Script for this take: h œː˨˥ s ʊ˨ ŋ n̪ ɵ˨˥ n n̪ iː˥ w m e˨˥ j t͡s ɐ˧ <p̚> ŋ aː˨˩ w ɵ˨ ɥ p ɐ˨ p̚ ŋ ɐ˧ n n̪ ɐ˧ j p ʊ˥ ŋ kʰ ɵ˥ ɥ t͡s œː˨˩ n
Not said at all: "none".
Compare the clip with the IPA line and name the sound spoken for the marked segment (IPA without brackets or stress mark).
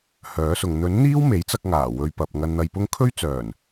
k̚